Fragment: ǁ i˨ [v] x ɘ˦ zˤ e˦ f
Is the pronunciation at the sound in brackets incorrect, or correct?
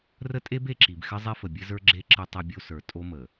incorrect